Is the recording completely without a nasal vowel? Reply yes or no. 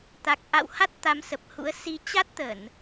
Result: yes